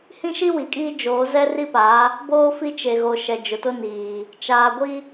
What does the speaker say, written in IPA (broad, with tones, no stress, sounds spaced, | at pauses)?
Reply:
h ĩ˦ ʃ i˦ w i˨ kʼ iː˦ d͡ʒ oː˨˦ z ɛ˦ r i˦ p a˨˦ | b oː˦ f i˦ t͡ʃ e˨ ɣ o˨ ʃ ɛ˨ d͡ʒ ʊ˨ t ʊ˦ n iː˨ | t͡ʃ aː˨ ɡʷ i˦